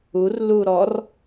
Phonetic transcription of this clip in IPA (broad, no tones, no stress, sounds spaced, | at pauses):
u r l u ɾ ɔ r